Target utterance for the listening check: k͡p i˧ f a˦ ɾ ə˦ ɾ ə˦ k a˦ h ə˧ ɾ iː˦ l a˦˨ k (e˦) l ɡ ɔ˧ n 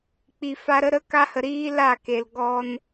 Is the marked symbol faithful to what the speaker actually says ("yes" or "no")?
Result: no